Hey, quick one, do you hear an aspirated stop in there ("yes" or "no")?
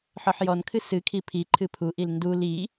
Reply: yes